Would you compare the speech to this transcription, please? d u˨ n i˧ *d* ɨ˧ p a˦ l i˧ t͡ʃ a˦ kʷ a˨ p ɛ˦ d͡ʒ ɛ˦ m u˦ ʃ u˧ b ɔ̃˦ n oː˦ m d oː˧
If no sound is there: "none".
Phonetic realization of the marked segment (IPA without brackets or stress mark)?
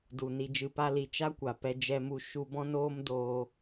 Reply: d͡ʒ